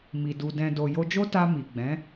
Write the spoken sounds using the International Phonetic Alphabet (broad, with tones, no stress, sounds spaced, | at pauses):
m i˨ d u˨ d ɛ̃˨ d o˨ j o˧ d͡ʒ o˦ t a˧ m i˨ ɡ͡b ɛ̃˨˦